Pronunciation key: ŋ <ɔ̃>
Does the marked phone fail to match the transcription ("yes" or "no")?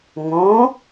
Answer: yes